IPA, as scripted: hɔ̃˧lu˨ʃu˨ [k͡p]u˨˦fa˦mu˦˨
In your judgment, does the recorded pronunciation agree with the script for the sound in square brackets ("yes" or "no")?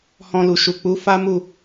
yes